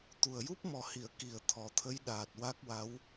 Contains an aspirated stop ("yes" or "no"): yes